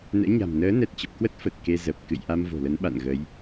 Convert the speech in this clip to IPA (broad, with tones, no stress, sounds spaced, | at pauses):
n ɛ̰˧˥ ɲ a̤˨˩ m n əː˨˦ n ɛ˨˩ t̚ t͡ɕ ə˨˩ p̚ k w ə˦˥ t̚ f ə˨˩ t̚ k e˧ z ə˨˩ p̚ k ɨ̰˧˨ j ʔ a˧ m v o̤˨˩ l ə˨˦ n ɓ a̰˧˨ n ɣ ə˨˦ j